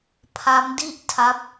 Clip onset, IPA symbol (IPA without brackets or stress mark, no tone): pʰ